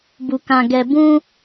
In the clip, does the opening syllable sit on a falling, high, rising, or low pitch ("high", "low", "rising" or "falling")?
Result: low